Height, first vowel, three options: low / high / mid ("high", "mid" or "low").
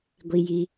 high